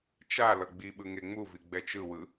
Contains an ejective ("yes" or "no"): no